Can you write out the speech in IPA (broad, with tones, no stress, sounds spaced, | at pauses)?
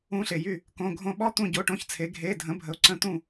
ũ˦˥ ɬ e˨ j y˥˩ | k õ˧˥˧ ɡʱ õ˥˧ ɓ ɔ˦˥ t̪ ũ˥˧ ɟ o˧˥˧ ʈ õ˧˥˧ ç t͡sʰ e˨˥ ɡʱ e˧˥˧ dʱ ə̃˨˥ bʱ ə˨ ʊ̯ ǀ ə̃˥˩ t̪ ũ˥˩